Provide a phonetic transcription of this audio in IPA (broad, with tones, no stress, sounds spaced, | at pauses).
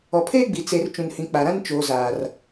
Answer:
ɔ˨ pʰ eː˦ ɡ͡b i˨ t͡s e˨ r t͡ʃ ũ˨ n h ĩ˨ k͡p a˨ ɾ ã˦ n t͡ʃ oː˨ z aː˨ r